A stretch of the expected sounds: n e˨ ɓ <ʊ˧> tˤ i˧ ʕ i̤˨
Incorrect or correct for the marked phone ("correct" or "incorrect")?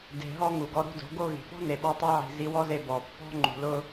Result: incorrect